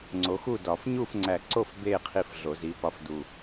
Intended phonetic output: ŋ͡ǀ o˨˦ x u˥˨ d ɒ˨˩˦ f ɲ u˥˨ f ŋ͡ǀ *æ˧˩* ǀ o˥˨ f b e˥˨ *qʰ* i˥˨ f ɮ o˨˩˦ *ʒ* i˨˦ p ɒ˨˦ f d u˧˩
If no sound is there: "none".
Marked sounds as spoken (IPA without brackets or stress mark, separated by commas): æ˧˩, qʰ, z